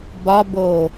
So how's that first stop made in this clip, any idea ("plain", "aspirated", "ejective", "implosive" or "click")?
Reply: plain